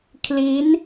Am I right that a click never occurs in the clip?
yes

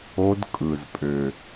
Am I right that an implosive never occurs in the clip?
yes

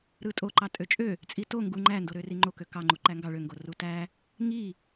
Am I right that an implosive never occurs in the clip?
yes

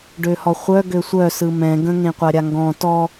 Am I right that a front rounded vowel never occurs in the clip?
no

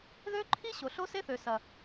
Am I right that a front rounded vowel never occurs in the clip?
no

